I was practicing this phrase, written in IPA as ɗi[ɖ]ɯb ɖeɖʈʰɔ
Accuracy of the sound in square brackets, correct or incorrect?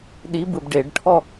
incorrect